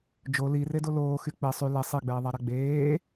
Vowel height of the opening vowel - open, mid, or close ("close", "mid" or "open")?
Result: mid